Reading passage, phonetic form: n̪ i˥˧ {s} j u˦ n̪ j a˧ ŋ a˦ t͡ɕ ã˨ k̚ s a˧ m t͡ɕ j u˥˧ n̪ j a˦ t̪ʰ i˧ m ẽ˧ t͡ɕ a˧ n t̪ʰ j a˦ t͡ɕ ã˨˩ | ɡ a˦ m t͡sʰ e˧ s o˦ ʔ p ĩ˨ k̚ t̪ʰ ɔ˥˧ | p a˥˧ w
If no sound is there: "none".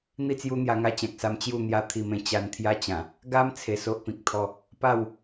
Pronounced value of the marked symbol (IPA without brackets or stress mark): t͡s